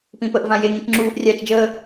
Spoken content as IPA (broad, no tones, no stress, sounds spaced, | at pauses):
p ĩ p ə ʔ v ã j e ŋ ĩ t͡ʃ ŋ͡ǁ uː ʔ rʲ aː t͡ʃ d͡ʒ əː